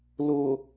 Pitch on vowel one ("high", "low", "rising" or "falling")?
low